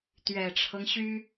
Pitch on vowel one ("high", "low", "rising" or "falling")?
low